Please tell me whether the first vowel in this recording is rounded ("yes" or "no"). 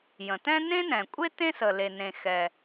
no